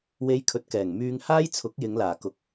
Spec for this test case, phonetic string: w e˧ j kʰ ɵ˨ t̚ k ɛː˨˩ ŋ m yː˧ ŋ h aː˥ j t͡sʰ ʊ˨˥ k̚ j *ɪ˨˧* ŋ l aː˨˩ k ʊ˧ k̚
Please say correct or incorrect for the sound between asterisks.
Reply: correct